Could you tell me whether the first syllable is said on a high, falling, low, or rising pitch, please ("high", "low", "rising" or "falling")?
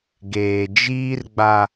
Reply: low